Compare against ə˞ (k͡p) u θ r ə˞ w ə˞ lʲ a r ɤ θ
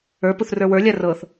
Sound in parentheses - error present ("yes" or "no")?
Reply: yes